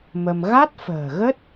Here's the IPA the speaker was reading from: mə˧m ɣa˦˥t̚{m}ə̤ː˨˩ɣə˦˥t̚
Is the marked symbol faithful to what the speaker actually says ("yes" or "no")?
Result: no